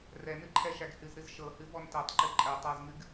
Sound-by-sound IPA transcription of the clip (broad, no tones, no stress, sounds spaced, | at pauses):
r ɛ n ɨ ǃʰ ɛ ʃ æ ɡ h ɨ z ɾ ɨ z ʃ ɤ h ɨ v ɔ n t ɛ tˤ ǃ ɨ ǃʼ ɛ tˤ a z ŋ ɨ ɡ